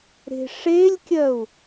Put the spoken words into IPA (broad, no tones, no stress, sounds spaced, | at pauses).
ɾ e̤ ʂ e lʲ kʲ ɜ u̯